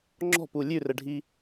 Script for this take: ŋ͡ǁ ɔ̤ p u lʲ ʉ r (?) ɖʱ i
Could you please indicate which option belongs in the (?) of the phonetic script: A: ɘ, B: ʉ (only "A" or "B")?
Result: A